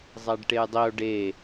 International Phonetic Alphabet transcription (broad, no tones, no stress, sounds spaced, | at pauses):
zˤ æ ɖ ʈ e j dˤ i o̯ ɖ e